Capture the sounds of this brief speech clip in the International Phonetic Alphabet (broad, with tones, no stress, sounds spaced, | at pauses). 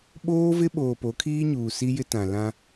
ɓ oː˦ v ɪ˦ ɓ oː˨ p o˨˦ kʰ iː˦ ɲ uː˨ s i˦ j ɪ˦ t ã˨ l ã˦